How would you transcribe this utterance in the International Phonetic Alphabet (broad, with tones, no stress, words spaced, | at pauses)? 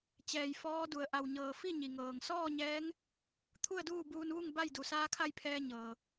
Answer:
t͡ɕɛː˧˩j fɔː˧˥du˩ə̯ʔa˧˩wɲɤː˧˩ fi˥˨ɲi˩ŋɤː˩ŋ sɔː˥˨ɲɛː˧˥ŋ | t̪ʰu˥˨ə̯duː˥˨buː˧nʋu˥˨ŋ ba˥˨jdu˩˧ saː˧˥kʰa˥˨jpʰɛː˧ ɲɤː˩